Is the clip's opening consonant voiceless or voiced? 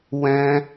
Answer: voiced